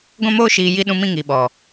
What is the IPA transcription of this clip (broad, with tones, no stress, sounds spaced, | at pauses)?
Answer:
ɡʷ ɛ̃˦ m oː˦ ʃ iː˧ j i˦ ɗ ũ˦ m ĩ˦ ŋ i˨ ɓ ɔ˨